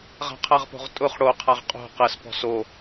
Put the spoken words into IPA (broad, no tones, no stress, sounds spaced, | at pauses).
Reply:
ʁ a̤ qʰ a ʁ p o̤ ʁ tʼ ʊ χ ɽ o qʰ a ʁ qʼ o̤ q ɜ s p ɔ̤ s o